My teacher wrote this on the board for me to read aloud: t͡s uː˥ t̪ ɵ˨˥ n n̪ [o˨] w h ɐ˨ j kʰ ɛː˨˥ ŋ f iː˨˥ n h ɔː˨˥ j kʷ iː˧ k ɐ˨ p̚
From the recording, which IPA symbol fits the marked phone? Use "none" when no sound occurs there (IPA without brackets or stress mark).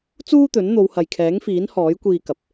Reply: o˨˧